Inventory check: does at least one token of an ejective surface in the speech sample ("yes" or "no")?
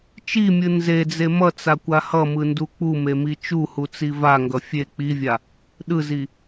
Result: no